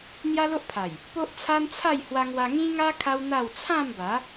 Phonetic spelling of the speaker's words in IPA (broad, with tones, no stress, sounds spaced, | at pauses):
n̪ j a˦ l o˦ ʔ pʰ a˨˩ j | p o˦ ʔ t͡sʰ a˦ n t͡sʰ a˥˧ j h w a˧ ŋ w a˧ ŋ ĩ˦ ŋ a˦ kʰ a˦ w n̪ a˥˧ w t͡sʰ ã˥˧ m b a˨˦